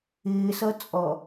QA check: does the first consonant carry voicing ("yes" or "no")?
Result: no